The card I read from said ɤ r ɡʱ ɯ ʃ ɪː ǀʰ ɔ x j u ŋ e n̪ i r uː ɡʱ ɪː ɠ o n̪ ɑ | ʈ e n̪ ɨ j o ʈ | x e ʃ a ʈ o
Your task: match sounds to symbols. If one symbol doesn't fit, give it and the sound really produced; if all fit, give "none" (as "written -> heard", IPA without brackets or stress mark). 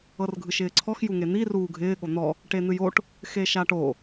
ɑ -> ɔ